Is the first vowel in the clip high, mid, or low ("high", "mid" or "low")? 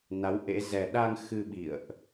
low